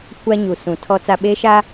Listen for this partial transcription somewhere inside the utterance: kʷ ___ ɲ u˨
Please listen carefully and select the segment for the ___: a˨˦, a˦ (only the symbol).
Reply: a˦